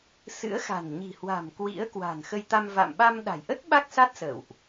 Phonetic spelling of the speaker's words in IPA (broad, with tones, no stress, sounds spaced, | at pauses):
s ɨ̰˧˥ ə̯ x a̤˨˩ n ɲ i̤˨˩ h w a̤˨˩ m k w ḭ˧˥ ə̯ k w a̤˨˩ n x ə˧ j t̪ a˧ m v a̰˧˨ m ɓ a˧ m ɗ a̤˨˩ j ʔ ə˦˥ t̚ ɓ a˦˥ k̚ s a˦˥ t̚ s ə̰ː˧˨ w ʔ